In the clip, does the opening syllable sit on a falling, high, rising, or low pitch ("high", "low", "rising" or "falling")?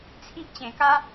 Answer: high